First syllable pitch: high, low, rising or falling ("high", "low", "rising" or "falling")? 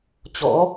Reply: rising